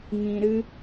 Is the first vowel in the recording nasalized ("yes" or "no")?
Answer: yes